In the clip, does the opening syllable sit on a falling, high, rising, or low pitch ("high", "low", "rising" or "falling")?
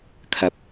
rising